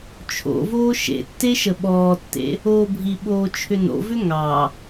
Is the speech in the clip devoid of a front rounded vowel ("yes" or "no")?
no